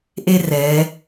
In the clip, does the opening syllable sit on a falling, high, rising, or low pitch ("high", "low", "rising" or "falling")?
high